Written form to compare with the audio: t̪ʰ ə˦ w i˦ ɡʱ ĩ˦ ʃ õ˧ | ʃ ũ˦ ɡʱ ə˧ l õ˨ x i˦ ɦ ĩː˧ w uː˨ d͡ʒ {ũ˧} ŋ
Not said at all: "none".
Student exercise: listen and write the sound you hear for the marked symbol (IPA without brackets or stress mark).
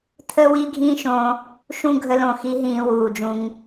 ũ˧